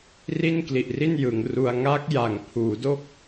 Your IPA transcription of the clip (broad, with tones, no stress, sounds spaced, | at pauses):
r i˥˩ n k l i˨˩ ʔ r i˥˩ n j ɯ˩˦ ŋ r u˧ a̯ ŋ a˦˥ k̚ j a˩˦ ŋ pʰ uː˩˦ d o˥˩ k̚